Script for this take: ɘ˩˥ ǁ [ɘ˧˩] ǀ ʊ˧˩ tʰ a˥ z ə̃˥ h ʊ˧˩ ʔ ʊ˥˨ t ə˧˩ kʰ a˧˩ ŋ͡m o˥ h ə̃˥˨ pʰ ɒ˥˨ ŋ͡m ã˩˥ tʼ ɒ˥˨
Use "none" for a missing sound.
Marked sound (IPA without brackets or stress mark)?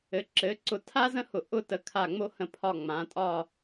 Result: ɘ˩˥